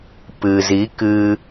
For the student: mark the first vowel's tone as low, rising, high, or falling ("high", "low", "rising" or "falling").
low